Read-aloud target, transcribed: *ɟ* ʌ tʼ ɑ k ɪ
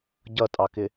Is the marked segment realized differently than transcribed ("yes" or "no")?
no